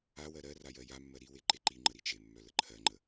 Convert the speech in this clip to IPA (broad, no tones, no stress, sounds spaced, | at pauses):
a w ɜ ɾ ɜ r a j ɜ j a mː ɜ ɾ i w e ǃ e ǃ i ŋ͡ǃ ə ɾ i t͡ʃ e mː œ l ə ǃʰ ɜ ŋ͡ǃ ə